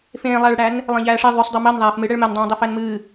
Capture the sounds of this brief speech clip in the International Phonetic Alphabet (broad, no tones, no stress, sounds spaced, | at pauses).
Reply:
f ẽː lˠ æ ɭ ɽ æ n | lˠ ẽ ʎ æː ʂ e ðˤ y sˤ dˤ ɜ m ɜ n ðˤ æː f m ɨ ɽ ɛ ɭ m ɛ n dˤ ẽː dˤ ɛ f æ n m ɨː